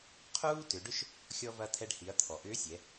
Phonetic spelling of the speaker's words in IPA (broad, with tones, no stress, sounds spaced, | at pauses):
qʰ uː˥ t ʏ˩˧ ɖ ʏ˥ ʃ | xʲ ɔ˧ v ɐ˧ t̪ʰ ɛ˧ ɖ h i˩˧ ɐ̯ t̪ʰ ɔ˩ ʔ ʏː˧˥ sʲ ɛ˩˧